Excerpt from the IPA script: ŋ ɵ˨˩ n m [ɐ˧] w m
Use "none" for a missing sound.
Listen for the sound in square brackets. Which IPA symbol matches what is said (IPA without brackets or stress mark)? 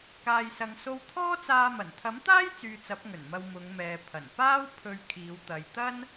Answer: ɐ˧